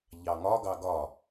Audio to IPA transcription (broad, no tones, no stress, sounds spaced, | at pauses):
ʎ ɑ ŋ ɒ ɡ ɑ ɡ ɒ